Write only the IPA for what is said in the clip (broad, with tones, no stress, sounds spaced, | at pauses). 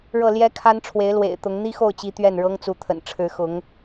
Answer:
ɻ ɤ˥˩ l j ɛ˥ kʰ a˥ n ʈ͡ʂʰ w e˧˥ ɪ̯ l w ḛ˨˩ ɪ̯ t̪ ʊ˧˥ ŋ n̪ i˥ x o˥˩ ʊ̯ t͡ɕ i˧˥ t̪ ɥ ɛ˥˩ n ɻ ɤ˥ ŋ t͡s u˧˥ t̪ʰ ə̰˨˩ n ʈ͡ʂʰ ɻ̩˧˥ x ʊ˧˥ ŋ